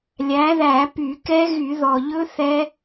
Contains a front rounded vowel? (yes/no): yes